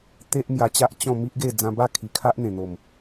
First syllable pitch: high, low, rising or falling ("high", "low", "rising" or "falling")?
high